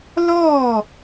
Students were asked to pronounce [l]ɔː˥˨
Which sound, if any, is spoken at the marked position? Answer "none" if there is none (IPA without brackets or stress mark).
l